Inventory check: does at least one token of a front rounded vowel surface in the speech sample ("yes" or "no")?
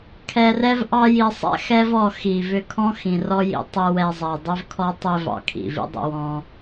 yes